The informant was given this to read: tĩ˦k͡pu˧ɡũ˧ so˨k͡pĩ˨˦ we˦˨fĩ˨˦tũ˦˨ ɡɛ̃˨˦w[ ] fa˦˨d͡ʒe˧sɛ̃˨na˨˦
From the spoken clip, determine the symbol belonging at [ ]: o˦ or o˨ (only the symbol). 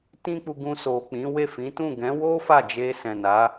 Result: o˦